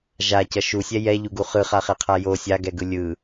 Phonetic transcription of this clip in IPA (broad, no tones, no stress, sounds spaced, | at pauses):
ʒ a c ʌ ʃ u sʲ ɛ j ɛ ʎ u ɡ u χ ɯ χ a χ ɛ qʰ a j o sʲ a ɡ ɛ ɡ ɯ lʲ ɯ